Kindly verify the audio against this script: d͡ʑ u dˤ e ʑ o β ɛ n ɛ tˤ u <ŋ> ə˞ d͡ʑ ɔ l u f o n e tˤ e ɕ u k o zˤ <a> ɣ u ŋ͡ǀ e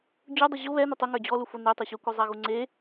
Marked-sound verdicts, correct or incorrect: correct, correct

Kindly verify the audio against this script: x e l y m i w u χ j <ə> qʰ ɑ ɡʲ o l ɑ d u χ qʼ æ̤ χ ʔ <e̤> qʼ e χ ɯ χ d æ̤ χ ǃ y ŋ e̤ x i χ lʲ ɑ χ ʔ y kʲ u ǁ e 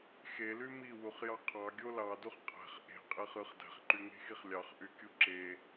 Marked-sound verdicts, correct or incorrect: incorrect: ɑ, correct

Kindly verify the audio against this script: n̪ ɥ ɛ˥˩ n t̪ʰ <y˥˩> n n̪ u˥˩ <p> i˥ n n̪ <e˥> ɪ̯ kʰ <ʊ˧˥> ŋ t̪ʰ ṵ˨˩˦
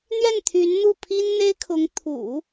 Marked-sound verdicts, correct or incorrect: incorrect: y˧˥, incorrect: pʰ, correct, correct

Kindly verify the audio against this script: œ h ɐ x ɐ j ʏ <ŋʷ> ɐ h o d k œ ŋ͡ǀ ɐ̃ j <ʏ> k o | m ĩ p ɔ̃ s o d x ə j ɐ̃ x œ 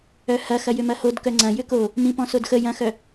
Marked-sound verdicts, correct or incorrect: incorrect: m, correct

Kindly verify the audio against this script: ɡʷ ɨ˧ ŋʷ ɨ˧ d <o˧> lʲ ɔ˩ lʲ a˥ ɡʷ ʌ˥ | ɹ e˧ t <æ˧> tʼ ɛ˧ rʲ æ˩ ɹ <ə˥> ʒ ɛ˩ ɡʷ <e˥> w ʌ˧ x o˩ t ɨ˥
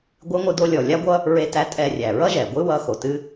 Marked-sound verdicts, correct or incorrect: correct, correct, incorrect: ʌ˥, incorrect: ɨ˥

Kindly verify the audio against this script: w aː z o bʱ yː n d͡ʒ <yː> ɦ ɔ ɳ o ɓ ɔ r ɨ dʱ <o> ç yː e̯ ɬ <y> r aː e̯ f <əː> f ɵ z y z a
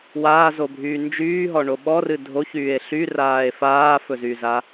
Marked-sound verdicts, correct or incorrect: correct, correct, correct, incorrect: aː

